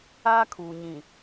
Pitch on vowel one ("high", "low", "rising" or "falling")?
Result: high